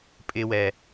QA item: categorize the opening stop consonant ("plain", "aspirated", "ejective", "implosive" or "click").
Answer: ejective